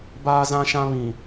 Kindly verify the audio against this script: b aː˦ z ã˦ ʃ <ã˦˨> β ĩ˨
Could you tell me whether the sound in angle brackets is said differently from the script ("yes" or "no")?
yes